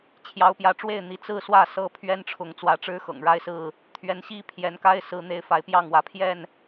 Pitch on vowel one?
rising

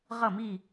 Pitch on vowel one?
falling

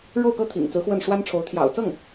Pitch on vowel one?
falling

